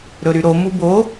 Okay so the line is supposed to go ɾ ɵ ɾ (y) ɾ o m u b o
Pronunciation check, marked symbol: correct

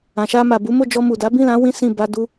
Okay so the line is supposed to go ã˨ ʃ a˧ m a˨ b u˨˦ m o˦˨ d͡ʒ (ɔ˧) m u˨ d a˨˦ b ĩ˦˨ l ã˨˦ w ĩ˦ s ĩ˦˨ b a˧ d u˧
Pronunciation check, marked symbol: correct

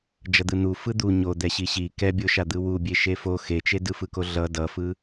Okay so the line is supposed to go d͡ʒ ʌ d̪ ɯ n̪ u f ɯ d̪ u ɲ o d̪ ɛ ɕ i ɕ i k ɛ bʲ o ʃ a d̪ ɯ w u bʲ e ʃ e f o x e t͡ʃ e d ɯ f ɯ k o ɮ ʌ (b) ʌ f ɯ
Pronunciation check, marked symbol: incorrect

